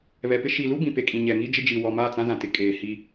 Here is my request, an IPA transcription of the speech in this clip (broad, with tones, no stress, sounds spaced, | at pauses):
β ɛ˨ p ɪ˦ ʃ i˨ l u˦ b ĩ˨ p e˨ kʼ ĩ˨ ɲ ɛ˨ ŋ i˦ d͡ʒ ɪ˦ d͡ʒ i˨ w ɔ˨ m a˦˨ t͡s ã˦ z ã˨ t ɪ˨˦ kʼ eː˨ h i˦